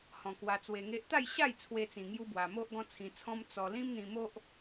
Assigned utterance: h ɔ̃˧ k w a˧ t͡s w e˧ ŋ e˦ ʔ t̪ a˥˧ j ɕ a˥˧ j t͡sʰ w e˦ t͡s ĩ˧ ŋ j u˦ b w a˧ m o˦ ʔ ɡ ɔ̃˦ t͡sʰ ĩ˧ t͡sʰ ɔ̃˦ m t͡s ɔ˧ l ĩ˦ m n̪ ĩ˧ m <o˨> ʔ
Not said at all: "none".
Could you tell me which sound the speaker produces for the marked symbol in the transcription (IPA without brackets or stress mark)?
o˦